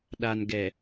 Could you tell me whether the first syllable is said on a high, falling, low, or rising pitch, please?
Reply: low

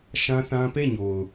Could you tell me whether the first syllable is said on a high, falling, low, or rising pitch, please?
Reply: high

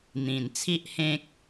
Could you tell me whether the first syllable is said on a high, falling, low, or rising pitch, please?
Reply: low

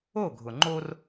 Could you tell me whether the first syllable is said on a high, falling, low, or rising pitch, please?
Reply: falling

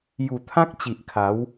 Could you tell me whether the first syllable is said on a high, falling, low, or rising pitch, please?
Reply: low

